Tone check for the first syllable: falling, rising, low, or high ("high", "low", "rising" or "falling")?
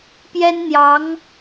high